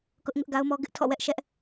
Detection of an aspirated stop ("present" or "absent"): present